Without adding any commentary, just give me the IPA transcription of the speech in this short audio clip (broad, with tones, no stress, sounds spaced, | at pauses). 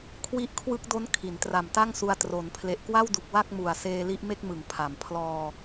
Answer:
kʰ w i˦˥ ʔ kʰ w ɯ˦˥ k̚ d o˦˥ n kʰ i˩˦ n t r a˨˩ m t a˥˩ ŋ s u˧ a̯ t r o˩˦ n pʰ l e˨˩ ʔ k w a˥˩ w d u˨˩ k̚ w a˥˩ k̚ m u˨˩ a̯ s eː˧ l i˦˥ ʔ m e˥˩ k̚ m ɯ˩˦ ŋ pʰ a˩˦ m pʰ l ɔː˧